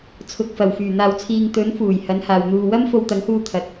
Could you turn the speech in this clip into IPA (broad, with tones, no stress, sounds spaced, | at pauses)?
t͡sʰ ʊ˨ k̚ f ɐ˨˩ w f yː˨˩ n̪ aː˨ w t͡sʰ iː˨ ŋ t̪ ɵ˨˥ n f uː˨˩ j h ɐ˨˥ n h aː˨ w n̪ uː˧ w ɐ˥ m f o˧ w t̪ ɐ˨˥ ŋ h uː˧ t̪ʰ ɐ˨ t̚